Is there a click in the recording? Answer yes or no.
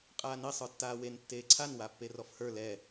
yes